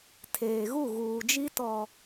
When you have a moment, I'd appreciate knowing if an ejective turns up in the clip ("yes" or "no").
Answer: no